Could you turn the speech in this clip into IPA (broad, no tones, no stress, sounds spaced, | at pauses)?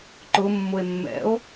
ǃ ʊ mː ʊ e̯ mː ɛ̰ o̯